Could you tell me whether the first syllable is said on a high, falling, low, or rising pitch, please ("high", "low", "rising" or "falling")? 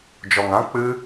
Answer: low